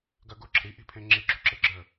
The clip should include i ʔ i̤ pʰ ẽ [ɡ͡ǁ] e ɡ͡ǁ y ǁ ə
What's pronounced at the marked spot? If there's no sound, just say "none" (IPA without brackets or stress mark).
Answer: ŋ͡ǁ